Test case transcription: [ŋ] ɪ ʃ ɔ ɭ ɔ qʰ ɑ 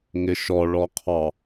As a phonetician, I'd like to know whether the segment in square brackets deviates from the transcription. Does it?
no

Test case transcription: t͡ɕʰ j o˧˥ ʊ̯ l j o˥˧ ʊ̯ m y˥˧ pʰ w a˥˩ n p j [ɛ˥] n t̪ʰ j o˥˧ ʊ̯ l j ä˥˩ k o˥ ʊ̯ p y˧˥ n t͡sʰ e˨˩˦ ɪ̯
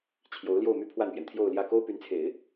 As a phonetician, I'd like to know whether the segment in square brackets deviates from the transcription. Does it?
yes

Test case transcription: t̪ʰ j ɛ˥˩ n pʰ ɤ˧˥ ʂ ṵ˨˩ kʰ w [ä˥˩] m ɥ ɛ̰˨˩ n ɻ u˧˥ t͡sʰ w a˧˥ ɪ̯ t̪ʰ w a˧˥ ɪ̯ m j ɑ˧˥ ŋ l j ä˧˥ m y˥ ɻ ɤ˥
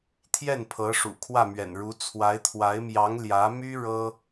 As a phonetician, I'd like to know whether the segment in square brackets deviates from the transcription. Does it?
no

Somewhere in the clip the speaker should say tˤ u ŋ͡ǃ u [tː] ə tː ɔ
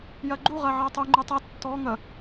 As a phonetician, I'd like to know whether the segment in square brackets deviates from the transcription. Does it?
yes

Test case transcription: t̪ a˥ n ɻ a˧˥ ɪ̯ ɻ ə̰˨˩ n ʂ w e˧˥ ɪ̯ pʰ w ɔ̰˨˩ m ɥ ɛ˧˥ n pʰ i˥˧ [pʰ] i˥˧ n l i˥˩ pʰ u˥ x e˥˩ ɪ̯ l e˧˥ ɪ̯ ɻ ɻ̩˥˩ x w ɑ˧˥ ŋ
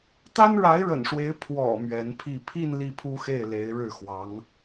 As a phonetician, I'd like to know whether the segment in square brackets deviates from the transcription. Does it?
no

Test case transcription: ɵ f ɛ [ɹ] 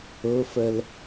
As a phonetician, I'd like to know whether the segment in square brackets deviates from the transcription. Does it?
yes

